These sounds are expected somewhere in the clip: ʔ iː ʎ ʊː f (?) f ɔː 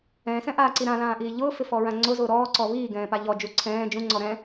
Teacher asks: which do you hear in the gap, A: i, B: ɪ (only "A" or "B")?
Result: B